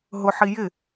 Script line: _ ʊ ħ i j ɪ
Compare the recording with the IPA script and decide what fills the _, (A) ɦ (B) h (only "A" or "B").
A